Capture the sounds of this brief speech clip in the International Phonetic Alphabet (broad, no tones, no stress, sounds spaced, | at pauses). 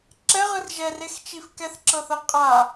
ǁ ɛ ʁ ɯ r ʒ ɛ r e x t͡ʃ i f k ɛ θ ǁ ɤ θ ɤ qʼ a